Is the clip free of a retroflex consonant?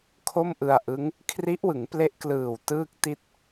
yes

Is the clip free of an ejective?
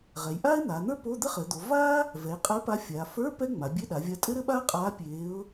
no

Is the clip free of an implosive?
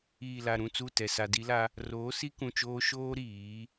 yes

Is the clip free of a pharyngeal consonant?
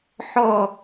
no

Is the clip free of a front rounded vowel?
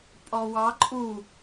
yes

